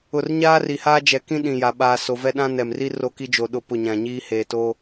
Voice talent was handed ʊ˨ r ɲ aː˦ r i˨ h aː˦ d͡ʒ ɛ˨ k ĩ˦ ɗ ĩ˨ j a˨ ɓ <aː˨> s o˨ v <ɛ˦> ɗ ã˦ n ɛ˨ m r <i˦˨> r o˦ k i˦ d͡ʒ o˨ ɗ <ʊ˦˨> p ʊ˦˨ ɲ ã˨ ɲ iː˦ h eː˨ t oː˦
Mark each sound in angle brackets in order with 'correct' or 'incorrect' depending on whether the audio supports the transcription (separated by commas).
correct, correct, incorrect, correct